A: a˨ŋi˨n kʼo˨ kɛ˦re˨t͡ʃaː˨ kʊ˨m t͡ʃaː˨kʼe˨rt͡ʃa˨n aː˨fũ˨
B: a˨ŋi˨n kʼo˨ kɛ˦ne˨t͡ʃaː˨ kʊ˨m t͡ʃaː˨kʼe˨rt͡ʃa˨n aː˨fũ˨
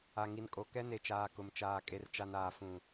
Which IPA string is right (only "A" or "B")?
B